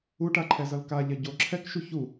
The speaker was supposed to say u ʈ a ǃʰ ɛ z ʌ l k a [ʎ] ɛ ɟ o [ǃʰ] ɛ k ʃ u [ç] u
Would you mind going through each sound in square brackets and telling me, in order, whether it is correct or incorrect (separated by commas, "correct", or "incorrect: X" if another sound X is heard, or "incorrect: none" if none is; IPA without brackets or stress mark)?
correct, incorrect: ǁʰ, correct